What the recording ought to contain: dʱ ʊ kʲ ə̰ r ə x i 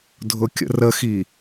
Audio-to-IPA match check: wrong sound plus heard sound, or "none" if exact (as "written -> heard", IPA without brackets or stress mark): none